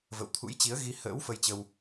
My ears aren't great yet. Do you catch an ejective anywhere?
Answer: no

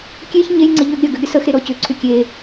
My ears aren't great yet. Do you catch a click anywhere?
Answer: yes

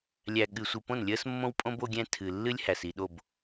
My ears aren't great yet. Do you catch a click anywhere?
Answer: no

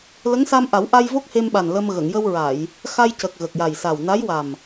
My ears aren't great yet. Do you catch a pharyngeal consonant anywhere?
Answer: no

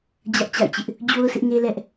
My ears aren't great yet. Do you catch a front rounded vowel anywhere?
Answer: no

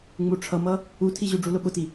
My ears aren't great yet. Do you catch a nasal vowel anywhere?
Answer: no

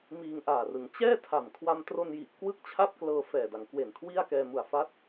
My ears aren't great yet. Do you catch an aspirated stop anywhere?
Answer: yes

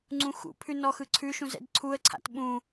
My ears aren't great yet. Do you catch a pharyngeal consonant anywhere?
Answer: no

